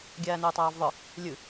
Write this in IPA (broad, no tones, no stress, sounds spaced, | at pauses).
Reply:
ɡʲ æː n ɵː tˤ æː v ðˤ ɯ | lʲ ɨ